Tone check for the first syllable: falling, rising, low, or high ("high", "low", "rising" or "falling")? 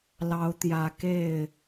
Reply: rising